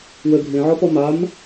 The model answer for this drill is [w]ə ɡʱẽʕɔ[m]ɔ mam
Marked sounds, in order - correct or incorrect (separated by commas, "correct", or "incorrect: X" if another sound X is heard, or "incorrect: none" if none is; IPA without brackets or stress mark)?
correct, incorrect: p